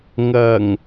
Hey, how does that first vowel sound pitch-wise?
low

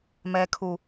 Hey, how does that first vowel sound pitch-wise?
low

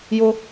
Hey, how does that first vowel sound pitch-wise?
high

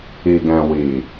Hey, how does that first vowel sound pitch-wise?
low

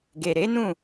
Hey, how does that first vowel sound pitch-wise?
low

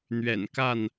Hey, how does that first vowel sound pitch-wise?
low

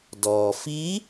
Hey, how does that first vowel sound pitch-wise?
low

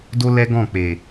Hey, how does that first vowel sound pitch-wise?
high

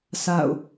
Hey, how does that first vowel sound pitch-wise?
falling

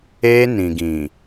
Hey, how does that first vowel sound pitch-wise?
high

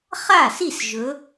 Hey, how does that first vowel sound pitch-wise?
falling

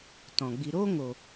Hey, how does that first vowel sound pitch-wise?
low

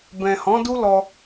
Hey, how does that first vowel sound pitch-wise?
low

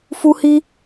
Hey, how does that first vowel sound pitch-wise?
high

